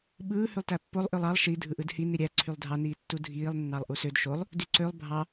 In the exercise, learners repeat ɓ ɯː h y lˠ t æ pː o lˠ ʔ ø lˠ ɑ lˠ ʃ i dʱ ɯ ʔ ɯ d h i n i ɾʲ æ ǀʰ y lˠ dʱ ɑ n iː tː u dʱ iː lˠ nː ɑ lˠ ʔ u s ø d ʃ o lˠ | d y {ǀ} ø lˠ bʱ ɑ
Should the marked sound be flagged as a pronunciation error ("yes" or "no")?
no